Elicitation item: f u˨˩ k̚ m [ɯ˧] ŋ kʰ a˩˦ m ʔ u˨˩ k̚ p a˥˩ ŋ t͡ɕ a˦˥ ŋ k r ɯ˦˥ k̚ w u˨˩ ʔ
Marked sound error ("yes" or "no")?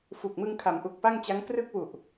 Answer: no